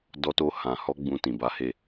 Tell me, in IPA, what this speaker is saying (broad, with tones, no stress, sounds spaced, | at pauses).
d ɔ˧ t o˧ h ã˨ h ɔ˧ ɡ͡b ũ˧ t ĩ˨ b a˨˦ h e˦˨